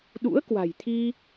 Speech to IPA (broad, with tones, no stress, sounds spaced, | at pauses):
ɗ ṵ˧˥ ə̯ k w a̤˨˩ j t̪ʰ i˧